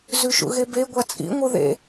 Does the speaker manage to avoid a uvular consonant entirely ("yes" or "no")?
yes